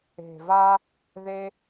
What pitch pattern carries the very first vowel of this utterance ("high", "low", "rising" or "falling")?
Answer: low